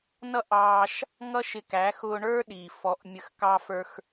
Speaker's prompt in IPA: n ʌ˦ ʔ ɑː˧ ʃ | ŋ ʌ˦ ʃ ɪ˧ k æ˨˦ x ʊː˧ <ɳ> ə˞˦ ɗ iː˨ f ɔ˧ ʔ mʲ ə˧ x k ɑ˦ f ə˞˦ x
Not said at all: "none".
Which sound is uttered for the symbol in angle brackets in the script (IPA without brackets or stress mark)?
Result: ɳ